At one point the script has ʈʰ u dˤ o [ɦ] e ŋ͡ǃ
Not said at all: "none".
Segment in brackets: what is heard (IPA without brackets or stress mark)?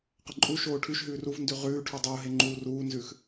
ɦ